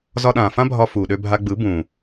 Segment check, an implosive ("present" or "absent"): present